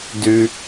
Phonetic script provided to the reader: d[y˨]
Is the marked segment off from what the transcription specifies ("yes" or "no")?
yes